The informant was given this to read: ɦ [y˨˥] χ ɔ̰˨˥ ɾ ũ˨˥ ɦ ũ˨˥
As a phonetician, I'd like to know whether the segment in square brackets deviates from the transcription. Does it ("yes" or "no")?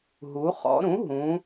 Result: yes